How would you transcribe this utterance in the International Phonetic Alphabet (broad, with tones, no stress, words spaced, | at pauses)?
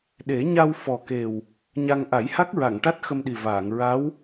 ɗe˨˩˦ɲa˧w fɔ˨˩ke˨˩w | ɲa˧ŋ ʔa˨˩˦jha˦˥k̚ɹa˨˩˨ŋʈa˦˥t̚ xə˧mɗi˨˩vaː˨˩˨ŋ ɹa˧˥w